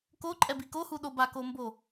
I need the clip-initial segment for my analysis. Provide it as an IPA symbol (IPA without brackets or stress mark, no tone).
k